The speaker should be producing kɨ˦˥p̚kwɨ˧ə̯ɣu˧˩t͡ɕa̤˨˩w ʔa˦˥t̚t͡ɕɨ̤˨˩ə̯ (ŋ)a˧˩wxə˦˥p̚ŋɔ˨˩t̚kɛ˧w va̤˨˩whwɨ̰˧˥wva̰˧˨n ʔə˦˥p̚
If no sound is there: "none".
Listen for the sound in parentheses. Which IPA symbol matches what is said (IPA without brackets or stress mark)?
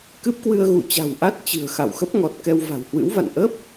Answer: x